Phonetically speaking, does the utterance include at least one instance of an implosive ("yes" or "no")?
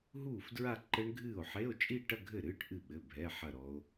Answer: yes